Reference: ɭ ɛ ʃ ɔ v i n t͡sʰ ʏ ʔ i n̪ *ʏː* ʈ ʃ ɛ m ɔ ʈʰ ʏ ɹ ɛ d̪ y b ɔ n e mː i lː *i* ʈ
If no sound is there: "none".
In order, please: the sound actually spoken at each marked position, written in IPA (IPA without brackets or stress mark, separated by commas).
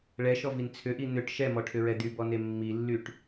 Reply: ʏ, y